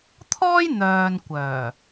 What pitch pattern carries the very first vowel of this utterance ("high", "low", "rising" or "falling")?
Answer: high